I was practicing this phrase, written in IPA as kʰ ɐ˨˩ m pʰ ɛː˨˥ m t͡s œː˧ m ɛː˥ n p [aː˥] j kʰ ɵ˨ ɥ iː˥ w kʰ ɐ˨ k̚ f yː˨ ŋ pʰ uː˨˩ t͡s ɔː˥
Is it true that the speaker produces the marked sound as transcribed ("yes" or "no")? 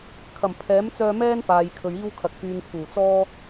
no